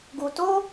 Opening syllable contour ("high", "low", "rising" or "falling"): low